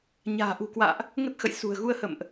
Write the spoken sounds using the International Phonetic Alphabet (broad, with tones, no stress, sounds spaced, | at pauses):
ɲ a̤ː˨˩ ʔ ṳ˨˩ k w a̰ː˧˨ ʔ | ŋ ə˦˥ t̚ x ə̰˧˨ j s ṳ˨˩ ə̯ ɣ u˧ ə̯ h ə̰˧˨ m ʔ